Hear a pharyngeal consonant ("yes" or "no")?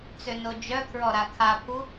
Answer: no